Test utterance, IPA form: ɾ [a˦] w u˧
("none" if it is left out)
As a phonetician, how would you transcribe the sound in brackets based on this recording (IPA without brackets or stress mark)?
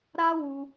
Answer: a˦